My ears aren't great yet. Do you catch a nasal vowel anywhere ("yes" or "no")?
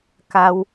no